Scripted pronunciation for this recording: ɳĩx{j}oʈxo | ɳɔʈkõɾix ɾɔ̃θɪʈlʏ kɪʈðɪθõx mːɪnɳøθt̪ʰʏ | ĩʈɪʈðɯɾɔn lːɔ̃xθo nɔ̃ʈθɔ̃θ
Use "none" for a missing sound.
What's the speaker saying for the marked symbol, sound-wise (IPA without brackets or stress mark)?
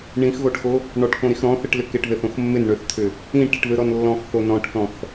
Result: ɣ